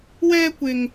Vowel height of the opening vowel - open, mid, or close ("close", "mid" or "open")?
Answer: mid